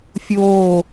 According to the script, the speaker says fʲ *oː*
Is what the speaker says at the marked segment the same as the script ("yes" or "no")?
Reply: yes